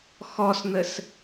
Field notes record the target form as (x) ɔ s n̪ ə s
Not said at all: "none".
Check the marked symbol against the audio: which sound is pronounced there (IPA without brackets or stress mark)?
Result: x